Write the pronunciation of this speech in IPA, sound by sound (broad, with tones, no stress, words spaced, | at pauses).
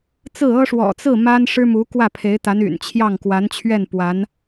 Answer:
t͡sɹ̩˥˩ɤ˥ ʂwɔ̰˨˩t͡sɹ̩˥˩ ma˥nʂɻ̩˥mu˧˥ kwä˥˩pʰe˧˥ɪ̯t̪a˧˥ny̰˨˩n t͡ɕʰjɑ˥˩ŋkwa˧˥nt͡ɕʰɥɛ˥˩n pwa˧˥n